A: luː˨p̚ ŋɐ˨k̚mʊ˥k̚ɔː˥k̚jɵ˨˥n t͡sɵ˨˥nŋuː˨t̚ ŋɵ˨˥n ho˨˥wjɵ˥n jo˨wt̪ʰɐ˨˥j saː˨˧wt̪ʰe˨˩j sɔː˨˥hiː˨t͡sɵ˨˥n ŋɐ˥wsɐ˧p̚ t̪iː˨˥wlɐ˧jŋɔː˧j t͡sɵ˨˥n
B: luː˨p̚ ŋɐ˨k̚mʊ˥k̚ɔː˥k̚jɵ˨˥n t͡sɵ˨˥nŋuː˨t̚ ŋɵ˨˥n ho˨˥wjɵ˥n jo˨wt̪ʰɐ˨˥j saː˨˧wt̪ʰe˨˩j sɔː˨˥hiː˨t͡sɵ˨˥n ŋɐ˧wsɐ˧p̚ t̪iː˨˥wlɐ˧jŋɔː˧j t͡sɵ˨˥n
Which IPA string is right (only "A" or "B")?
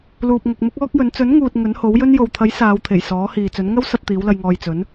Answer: A